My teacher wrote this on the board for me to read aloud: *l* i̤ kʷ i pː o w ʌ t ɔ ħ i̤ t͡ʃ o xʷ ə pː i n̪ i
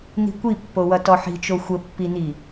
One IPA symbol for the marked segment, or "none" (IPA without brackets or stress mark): n̪